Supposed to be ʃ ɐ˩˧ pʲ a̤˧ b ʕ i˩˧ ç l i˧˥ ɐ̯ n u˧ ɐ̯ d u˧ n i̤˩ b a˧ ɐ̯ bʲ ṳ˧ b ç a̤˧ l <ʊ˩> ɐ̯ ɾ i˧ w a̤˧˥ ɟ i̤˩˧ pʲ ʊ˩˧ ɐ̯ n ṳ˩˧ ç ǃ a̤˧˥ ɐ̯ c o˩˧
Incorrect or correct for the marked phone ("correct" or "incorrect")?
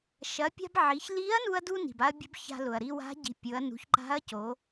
correct